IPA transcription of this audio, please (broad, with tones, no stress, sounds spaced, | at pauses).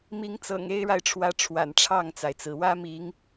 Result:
m i˨˦ ŋ t͡s ɤ̰˨˩ ŋ e˦ ɪ̯ ɻ a˨ ɪ̯ ʈ͡ʂʰ w ä˨˦ ʈ͡ʂʰ w a̰˨˩ n ʈ͡ʂʰ ɑ˥˨ ŋ t͡s a˩ ɪ̯ t͡s ɹ̩˩ w ä˦ m i˨˦ ŋ